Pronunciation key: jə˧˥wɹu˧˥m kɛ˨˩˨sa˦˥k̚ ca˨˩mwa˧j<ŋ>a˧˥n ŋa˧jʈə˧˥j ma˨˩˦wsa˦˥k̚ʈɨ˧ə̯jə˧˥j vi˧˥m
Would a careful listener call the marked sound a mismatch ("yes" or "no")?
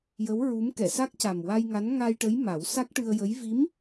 no